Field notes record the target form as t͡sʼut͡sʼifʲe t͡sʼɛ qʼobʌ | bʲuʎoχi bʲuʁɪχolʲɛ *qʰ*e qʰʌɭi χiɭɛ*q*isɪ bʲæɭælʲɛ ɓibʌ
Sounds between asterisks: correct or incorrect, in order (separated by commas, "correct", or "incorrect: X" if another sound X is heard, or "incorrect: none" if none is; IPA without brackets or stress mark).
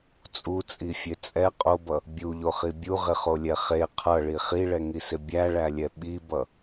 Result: incorrect: χ, incorrect: ŋ